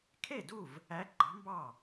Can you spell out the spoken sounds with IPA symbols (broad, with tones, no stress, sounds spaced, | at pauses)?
kʰ e˥˨ d u˥˨ v | æ˧˥ ɡ͡ǃ ɑ̤˧˥ m b ɑ˥˨